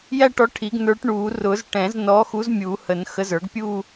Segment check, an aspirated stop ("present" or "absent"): present